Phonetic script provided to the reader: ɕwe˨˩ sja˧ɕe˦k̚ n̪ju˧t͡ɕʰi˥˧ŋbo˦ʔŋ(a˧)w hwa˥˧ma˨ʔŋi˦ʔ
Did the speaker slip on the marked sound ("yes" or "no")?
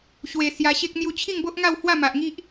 yes